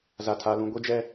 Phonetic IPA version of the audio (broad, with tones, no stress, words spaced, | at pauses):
za˦tʰa˦lũ˦ ɡʷi˦d͡ʒɛ˦